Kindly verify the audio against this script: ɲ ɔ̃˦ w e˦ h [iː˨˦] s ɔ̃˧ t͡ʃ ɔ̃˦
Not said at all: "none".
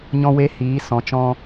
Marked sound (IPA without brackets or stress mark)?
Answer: iː˨˦